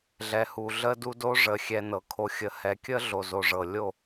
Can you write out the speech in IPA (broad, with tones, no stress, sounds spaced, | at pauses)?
ɮ ɛ˨ h u˨ ɮ ə˦ d u˦ d o˦ ʐ ə˨ xʲ ɛ˨ n ɤ˨ kʰ o˨ xʲ ə˨ h ɛ˨ kʲ ə˦ ɮ o˨ z o˨ ʐ ɤ˨ lʲ o˦˨